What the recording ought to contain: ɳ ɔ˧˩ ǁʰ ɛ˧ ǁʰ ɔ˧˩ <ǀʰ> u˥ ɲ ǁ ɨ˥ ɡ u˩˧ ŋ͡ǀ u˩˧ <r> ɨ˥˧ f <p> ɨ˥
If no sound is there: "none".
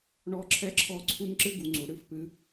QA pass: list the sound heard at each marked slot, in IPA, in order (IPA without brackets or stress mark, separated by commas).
ǀʰ, ɽ, p